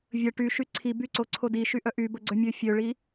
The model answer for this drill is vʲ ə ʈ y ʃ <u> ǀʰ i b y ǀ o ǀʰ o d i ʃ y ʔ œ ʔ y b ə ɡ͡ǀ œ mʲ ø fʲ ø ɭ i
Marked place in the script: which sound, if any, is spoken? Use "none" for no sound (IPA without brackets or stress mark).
y